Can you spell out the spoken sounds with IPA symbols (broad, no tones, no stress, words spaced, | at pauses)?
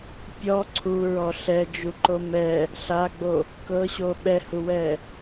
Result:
pʲɔ ǀʰuɹɔ ɬɛd͡ʒuǃo mɛ | ɬaɡ͡bo | kɤɕo ɓɛhuwɛ